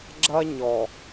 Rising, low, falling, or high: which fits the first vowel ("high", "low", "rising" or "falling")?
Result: high